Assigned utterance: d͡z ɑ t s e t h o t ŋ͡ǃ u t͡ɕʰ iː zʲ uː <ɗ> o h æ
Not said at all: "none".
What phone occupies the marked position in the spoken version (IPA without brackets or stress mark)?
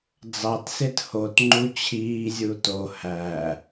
t